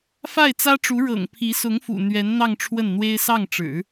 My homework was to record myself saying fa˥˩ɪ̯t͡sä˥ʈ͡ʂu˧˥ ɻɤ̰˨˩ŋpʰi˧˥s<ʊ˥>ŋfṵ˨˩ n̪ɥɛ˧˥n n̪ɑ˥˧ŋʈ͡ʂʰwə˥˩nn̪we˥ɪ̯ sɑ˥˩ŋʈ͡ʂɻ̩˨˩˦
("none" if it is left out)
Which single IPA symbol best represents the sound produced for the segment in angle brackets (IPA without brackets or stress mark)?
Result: ʊ˧˥